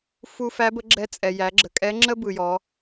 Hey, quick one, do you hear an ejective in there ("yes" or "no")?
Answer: yes